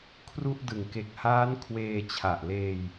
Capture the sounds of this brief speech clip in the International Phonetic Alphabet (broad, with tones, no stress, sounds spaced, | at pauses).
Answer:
kʰ r u˥˩ ʔ d ɯ˨˩ ŋ k e˨˩ k̚ h aː˦˥ n kʰ w eː˧ t͡ɕʰ a˨˩ ʔ l eː˧ j